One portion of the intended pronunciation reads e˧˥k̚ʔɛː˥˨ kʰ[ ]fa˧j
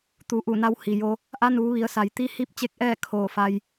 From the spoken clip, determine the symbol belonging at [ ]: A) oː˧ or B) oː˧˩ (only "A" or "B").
B